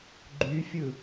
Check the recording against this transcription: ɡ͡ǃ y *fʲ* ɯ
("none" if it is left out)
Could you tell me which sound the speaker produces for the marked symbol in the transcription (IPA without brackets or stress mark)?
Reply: fʲ